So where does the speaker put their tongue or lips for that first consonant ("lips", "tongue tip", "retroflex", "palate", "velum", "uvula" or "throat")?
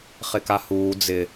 uvula